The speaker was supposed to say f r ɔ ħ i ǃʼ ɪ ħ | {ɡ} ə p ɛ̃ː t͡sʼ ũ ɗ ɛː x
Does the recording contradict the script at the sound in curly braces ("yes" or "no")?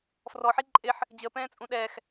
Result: yes